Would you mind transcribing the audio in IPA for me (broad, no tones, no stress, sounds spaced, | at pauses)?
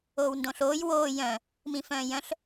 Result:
oː w n d õ ɬ oː j w oː j œ̃ | m ĩ f œ̃ː j œ̃ ɬ